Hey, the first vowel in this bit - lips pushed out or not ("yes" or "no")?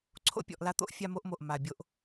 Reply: yes